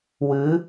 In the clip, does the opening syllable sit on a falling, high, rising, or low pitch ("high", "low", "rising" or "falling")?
rising